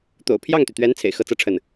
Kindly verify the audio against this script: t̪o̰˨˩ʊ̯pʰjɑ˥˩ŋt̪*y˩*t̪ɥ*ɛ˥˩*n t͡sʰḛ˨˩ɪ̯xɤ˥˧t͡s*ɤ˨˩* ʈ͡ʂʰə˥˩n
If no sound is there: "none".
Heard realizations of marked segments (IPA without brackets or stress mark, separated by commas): y˩, ɛ˧˥, ɤ˥˧